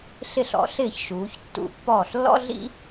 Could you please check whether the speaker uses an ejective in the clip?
no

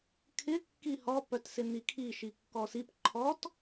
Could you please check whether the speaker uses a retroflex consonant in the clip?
no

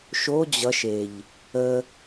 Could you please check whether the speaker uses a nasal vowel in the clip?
no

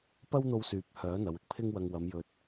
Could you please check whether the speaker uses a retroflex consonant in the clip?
no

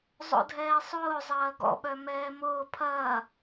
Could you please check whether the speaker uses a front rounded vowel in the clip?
yes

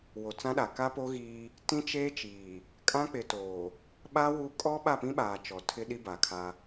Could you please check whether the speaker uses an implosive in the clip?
yes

